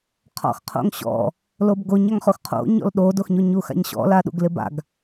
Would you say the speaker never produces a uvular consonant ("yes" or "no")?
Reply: no